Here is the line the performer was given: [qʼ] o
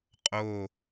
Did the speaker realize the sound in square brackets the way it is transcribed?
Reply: yes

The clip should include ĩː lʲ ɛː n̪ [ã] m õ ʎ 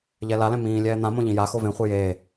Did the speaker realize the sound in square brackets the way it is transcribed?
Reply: yes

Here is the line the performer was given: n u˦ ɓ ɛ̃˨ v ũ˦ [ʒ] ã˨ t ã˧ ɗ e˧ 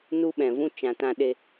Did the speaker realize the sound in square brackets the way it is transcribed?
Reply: no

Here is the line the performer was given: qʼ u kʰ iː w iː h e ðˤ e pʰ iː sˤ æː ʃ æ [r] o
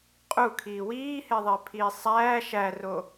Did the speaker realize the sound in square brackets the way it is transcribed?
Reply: yes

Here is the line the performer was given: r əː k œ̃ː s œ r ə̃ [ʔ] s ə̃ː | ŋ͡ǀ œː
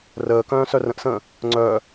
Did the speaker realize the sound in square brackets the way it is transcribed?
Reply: yes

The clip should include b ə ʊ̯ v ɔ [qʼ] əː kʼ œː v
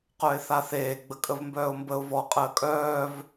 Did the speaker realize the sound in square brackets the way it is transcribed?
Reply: yes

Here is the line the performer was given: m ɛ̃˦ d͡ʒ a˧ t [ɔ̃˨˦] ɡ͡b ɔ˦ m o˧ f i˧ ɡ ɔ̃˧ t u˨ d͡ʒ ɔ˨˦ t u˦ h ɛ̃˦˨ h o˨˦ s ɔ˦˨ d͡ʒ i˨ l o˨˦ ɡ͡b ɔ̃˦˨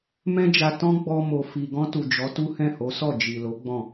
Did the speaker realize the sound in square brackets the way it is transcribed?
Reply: no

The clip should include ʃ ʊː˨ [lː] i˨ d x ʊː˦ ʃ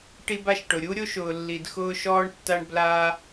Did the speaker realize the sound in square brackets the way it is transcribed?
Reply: yes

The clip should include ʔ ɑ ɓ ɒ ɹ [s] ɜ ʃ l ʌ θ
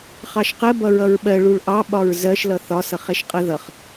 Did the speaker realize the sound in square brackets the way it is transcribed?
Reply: no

